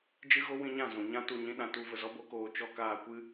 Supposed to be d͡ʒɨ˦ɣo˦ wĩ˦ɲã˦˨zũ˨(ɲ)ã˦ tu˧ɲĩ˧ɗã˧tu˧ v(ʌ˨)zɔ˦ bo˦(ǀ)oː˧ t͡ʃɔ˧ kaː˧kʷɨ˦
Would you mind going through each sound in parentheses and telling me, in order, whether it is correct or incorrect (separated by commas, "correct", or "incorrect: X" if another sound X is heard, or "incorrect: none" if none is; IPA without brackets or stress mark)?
correct, incorrect: ə˨, incorrect: k